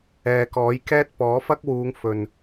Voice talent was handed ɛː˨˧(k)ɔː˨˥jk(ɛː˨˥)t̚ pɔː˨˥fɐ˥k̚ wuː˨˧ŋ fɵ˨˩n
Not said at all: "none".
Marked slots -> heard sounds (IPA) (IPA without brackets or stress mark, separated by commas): k, ɛː˥